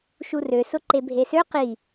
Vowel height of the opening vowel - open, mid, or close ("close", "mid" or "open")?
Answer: close